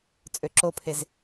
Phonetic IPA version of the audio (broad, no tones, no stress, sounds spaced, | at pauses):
t͡sʼ ø ǁ o pʰ e z